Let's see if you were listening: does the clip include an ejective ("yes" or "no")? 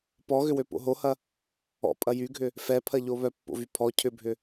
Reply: yes